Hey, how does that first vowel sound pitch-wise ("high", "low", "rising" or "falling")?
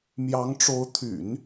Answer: rising